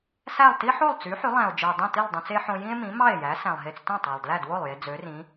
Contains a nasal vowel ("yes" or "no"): yes